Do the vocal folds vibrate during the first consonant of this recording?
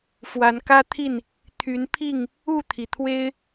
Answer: no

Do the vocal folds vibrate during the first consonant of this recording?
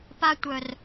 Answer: no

